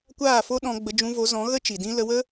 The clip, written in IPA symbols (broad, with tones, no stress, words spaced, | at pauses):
kʷaː˦˨fo˦ɗɔ̃˧ɡ͡bə˧ d͡ʒũ˧vo˨˦zɔ̃˨˦ ɣə˦ t͡ʃi˨dĩ˦ lə˧wə˦